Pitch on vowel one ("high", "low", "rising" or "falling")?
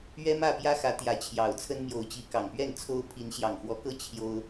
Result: high